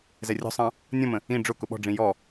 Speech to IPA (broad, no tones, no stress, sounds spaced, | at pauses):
z ɛ rʲ ɔ̤ sˤ ɑ̃ | nʲ ɔ̃ m ə̃ | ĩ ɖ͡ʐ ʊ k ʊ ɓ ɔ̤ ɖ͡ʐ ĩ j ɔ